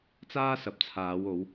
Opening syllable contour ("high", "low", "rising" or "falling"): high